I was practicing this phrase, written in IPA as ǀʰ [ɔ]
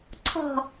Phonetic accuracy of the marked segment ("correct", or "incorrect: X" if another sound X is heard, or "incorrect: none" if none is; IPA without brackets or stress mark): incorrect: ɔ̤